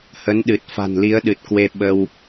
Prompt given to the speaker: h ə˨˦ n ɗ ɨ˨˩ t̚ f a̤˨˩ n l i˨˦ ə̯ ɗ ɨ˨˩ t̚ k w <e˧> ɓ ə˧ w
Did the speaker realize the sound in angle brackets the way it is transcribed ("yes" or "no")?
yes